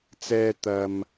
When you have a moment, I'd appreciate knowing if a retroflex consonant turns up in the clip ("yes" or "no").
no